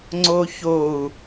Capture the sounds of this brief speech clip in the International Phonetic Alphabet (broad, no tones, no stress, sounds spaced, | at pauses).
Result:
ŋ͡ǀ o ç o u̯